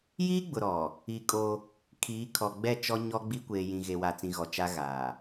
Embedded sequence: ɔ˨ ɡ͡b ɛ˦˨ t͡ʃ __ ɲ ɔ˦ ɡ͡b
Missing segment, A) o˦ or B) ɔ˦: B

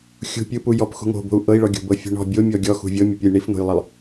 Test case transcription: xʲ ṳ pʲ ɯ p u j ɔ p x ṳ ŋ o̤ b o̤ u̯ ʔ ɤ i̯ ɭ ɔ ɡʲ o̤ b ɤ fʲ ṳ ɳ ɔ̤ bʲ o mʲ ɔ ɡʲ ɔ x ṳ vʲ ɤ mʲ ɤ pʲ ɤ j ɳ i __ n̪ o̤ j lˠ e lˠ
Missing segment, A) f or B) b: A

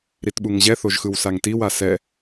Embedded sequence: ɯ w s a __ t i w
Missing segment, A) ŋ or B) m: A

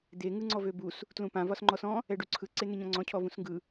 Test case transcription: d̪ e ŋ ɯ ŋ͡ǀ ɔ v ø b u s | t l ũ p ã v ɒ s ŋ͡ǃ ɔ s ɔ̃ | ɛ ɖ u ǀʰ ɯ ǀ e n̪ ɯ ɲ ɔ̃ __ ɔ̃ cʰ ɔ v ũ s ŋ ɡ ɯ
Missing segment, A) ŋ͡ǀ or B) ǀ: A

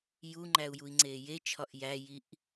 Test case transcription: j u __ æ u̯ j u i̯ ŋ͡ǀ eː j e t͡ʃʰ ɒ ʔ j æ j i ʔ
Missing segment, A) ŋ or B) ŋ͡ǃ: B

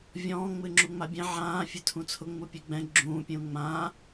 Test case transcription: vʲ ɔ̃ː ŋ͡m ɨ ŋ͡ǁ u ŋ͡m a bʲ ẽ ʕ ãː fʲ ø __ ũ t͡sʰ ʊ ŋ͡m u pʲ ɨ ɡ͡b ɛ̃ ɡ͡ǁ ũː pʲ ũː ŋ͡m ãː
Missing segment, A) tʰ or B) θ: A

